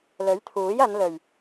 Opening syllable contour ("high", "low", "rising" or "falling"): rising